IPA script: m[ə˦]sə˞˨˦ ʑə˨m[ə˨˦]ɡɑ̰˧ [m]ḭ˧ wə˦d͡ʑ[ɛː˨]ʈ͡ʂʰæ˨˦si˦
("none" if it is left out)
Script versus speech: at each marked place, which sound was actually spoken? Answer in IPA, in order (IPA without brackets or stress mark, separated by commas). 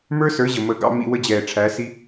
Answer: ə˞˦, ə˨˦, m, ɛː˨